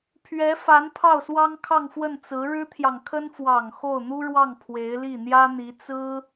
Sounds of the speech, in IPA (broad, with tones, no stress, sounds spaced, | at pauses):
pʰ ɥ ɛ˧˥ f a˧˥ n pʰ ɑ˥˩ ʊ̯ s w ɑ˥ ŋ kʰ ɑ˥˧ ŋ f w ə˥˩ n t͡s ɹ̩˧˥ ɻ ɻ̩˥ t̪ʰ j ɑ˨ ŋ kʰ ə˥ n f w ɑ˨˩ ŋ x o˥˩ ʊ̯ n̪ u˥ ɻ w ɑ˥˩ ŋ pʰ w e˧˥ ɪ̯ l i˥˩ n̪ j ä˥ n̪ i˧˥ t͡s ɹ̩˥